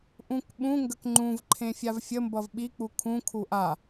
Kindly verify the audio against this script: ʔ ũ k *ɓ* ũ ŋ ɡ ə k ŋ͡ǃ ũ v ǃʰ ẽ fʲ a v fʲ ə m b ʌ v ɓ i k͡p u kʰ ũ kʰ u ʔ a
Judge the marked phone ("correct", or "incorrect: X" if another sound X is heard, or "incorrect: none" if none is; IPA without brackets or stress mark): correct